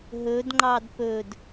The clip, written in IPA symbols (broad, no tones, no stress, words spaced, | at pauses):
ɦɵd ŋ͡ǃɑdpɵd